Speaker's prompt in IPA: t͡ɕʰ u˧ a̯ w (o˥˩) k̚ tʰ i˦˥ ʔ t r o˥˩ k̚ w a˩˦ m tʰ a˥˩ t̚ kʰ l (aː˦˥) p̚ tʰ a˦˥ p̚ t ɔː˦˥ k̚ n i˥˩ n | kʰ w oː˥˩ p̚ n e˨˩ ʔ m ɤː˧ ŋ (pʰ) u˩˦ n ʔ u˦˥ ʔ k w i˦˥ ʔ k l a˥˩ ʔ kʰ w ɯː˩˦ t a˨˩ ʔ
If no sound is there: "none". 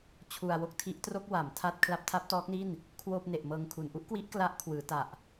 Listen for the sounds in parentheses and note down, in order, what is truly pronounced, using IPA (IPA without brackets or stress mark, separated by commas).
o˥˩, a˦˥, kʰ